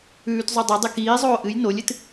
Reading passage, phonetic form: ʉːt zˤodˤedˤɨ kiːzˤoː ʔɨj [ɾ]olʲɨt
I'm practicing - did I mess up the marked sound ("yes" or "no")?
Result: yes